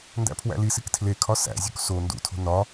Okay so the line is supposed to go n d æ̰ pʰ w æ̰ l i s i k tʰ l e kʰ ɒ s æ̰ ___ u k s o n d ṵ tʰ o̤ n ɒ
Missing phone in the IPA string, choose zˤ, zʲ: zʲ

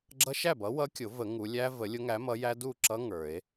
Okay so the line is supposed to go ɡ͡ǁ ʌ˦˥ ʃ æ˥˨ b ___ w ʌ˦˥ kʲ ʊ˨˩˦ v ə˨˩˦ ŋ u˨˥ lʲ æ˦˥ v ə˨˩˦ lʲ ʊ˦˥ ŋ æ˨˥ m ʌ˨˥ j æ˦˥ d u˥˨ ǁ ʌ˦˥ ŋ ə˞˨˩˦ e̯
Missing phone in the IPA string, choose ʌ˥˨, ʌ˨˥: ʌ˨˥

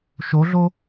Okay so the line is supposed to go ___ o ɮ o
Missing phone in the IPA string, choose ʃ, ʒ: ʃ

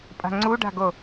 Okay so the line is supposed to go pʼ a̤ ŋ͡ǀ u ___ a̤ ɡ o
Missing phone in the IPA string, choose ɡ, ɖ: ɖ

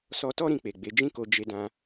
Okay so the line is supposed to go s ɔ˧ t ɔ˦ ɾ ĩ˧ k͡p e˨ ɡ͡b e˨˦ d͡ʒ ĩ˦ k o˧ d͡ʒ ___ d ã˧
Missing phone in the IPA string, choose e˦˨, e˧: e˧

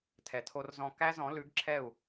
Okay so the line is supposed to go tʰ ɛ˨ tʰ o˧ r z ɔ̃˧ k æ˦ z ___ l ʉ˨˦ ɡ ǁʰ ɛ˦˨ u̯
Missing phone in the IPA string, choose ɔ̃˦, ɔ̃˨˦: ɔ̃˨˦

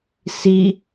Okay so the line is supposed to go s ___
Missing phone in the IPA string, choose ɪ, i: i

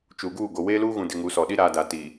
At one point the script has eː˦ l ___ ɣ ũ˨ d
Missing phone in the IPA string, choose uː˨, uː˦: uː˦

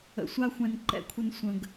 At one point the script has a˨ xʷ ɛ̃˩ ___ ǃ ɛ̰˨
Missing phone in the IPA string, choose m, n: n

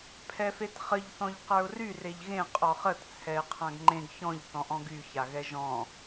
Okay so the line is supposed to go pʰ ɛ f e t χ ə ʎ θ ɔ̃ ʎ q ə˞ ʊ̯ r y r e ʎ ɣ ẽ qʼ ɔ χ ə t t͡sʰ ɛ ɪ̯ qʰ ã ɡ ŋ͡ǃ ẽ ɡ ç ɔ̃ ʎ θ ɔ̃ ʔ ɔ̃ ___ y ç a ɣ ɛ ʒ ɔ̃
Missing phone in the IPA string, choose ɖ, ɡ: ɡ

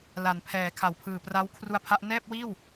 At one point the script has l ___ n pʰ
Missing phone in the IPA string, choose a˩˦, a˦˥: a˩˦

